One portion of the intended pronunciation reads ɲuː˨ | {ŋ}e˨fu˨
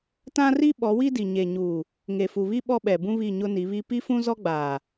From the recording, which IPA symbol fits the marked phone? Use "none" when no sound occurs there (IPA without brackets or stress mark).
ŋ